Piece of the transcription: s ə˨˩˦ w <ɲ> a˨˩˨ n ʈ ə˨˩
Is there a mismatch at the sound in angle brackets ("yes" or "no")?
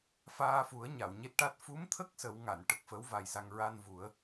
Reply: yes